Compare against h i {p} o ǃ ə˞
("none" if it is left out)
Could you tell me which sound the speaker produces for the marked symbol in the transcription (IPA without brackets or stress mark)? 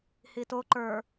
t